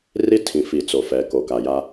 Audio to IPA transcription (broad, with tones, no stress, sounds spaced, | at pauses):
r i˦ tʰ ĩ˨ f i˨ t͡s o˨ f ɛ˨˦ k o˨ k a˨ j a˦